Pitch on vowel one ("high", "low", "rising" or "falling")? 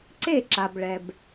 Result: falling